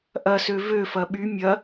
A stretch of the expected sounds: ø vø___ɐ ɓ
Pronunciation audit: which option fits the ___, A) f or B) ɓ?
A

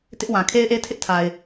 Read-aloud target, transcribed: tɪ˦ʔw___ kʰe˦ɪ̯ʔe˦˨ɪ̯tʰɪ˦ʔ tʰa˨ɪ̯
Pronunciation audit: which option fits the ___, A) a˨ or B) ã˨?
B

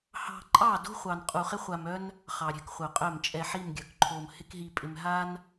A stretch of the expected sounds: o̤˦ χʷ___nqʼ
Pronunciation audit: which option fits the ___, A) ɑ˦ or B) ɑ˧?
B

